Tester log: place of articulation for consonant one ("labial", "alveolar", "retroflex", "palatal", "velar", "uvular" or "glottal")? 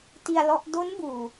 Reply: alveolar